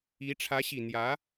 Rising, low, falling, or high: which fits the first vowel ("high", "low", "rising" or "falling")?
rising